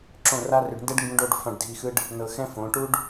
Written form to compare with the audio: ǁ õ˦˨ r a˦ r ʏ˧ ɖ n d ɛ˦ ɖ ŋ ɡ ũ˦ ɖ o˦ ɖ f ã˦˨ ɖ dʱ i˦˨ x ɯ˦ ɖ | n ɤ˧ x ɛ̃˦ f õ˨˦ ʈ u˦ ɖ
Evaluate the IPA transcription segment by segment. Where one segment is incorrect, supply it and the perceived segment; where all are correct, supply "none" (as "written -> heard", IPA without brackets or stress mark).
none